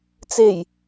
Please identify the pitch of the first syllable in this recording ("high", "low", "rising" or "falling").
low